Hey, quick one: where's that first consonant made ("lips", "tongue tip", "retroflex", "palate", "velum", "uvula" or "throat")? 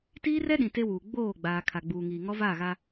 tongue tip